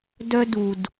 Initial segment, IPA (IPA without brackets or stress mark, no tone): d